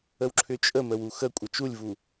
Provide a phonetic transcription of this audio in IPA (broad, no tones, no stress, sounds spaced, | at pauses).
ə w ǁʰ ʏ t͡ʃʼ ə m ə w u x ə kʷʼ ə t͡ʃ u lʲ v u